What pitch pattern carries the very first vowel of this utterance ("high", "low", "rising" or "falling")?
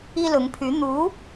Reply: high